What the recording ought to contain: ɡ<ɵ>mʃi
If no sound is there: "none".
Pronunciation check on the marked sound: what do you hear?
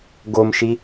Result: o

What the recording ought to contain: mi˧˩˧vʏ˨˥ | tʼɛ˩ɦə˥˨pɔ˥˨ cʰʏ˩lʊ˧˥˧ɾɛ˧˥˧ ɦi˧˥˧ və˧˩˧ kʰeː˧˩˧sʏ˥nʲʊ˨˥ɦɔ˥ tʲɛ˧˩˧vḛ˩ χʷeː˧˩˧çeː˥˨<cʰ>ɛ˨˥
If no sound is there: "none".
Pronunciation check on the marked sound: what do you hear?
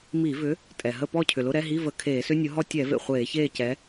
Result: c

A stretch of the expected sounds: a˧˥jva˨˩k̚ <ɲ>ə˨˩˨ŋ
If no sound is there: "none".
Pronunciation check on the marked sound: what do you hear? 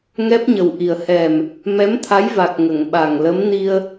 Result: ŋ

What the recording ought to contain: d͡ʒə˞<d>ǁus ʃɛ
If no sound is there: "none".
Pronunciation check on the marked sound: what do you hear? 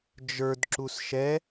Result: d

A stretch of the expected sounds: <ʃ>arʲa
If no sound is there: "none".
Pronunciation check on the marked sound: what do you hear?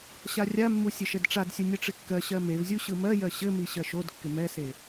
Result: ɕ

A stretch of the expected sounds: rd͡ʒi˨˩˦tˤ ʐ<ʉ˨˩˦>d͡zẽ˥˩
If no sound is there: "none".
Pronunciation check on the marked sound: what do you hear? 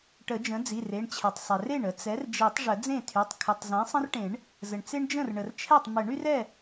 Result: ə˨˩˦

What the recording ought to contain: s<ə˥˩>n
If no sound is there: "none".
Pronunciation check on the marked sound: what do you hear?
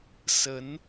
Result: ə˧˥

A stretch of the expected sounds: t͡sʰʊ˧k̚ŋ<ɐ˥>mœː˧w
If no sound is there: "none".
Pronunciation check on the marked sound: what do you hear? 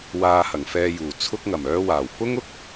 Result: ɐ˨˩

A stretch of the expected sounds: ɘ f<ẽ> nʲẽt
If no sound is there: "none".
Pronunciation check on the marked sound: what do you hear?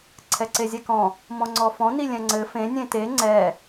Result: ẽ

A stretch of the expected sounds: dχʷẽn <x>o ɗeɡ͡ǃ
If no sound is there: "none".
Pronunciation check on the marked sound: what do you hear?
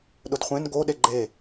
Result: ɡ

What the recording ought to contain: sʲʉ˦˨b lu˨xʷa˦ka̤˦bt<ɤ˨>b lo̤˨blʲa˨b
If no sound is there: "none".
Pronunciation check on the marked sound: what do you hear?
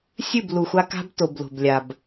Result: o˨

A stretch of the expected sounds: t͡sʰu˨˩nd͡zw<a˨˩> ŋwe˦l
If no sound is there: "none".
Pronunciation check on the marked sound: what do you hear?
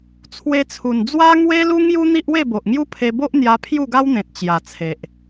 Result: a˦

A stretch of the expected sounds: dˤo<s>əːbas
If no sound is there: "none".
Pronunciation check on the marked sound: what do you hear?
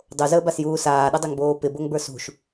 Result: z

